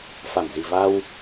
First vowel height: low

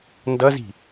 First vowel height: mid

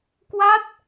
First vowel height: low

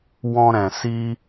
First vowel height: mid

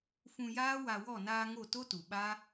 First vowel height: high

